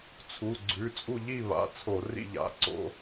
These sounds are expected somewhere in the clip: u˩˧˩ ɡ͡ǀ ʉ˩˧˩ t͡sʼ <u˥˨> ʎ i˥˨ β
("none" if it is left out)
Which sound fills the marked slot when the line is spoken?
u˥˨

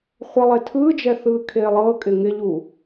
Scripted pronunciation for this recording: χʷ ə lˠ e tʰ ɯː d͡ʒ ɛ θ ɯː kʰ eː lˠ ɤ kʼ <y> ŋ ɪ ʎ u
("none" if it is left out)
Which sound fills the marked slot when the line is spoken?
ɪ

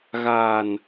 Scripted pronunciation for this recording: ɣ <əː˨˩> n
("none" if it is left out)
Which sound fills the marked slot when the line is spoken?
aː˨˩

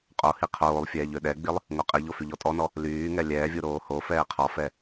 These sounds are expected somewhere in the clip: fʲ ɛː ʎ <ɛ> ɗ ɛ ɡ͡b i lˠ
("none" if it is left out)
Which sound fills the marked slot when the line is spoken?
ø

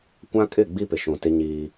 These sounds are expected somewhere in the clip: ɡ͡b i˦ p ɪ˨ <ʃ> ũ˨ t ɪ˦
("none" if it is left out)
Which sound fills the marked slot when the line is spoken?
ʃ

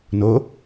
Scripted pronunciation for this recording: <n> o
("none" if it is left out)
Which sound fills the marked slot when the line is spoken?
n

